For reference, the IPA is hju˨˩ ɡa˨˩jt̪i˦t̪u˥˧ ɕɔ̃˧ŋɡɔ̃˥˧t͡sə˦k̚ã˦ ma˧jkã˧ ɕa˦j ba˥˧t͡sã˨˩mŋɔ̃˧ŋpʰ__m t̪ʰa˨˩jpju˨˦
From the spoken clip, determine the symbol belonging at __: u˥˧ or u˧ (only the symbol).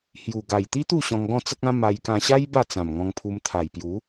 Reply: u˧